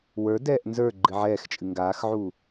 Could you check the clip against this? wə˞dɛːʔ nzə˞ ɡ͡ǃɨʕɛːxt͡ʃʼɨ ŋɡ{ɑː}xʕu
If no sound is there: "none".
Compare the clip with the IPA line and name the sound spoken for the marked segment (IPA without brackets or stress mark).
aː